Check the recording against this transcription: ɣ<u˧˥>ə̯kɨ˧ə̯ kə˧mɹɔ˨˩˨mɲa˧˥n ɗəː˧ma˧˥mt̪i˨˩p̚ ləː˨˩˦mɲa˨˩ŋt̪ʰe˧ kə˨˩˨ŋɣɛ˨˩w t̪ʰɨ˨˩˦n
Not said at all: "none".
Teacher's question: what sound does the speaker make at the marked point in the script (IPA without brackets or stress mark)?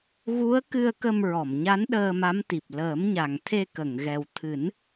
u˧˥